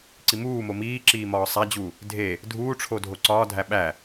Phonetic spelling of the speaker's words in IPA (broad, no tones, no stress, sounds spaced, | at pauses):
ǀ i m uː m o m iː ǁ iː m ɒː sˤ æ d͡ʑ u | dʱ e | dʱ uː ʈ͡ʂʰ o dʱ o ǀ ɒː dʱ æ ɓ æ